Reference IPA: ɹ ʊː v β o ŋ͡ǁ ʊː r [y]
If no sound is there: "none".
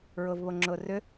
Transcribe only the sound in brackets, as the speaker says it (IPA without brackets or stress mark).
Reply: ʏ